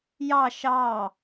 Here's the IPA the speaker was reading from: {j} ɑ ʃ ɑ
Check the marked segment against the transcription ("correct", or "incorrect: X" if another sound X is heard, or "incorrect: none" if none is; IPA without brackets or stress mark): correct